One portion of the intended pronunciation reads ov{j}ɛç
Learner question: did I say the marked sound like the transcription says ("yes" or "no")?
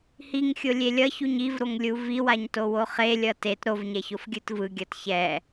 no